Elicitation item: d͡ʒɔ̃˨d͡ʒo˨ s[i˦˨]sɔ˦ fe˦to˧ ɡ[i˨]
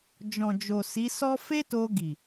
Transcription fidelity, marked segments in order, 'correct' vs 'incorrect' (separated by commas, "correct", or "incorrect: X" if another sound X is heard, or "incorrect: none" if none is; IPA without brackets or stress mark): incorrect: i˨˦, correct